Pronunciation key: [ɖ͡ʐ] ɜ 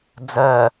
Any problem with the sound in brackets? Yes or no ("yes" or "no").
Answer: yes